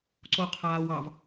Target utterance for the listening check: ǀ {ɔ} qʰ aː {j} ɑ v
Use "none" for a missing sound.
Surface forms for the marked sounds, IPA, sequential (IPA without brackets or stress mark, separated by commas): o, w